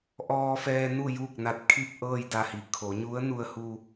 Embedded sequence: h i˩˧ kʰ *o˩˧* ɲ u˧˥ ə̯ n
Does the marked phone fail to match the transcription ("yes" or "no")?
no